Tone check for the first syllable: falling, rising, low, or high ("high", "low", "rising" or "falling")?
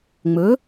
rising